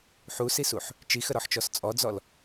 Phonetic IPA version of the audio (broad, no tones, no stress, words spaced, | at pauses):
ħusisuħ | t͡ʃixəɾɔħt͡ʃɔs t͡sʼɔd͡zɔl